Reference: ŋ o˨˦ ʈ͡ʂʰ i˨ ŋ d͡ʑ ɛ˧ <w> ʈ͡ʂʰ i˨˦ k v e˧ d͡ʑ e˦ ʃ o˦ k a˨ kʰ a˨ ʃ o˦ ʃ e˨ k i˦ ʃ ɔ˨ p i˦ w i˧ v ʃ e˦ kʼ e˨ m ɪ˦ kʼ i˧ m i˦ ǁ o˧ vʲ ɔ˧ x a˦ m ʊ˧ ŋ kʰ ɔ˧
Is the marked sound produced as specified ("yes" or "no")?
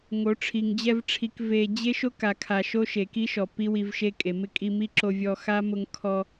no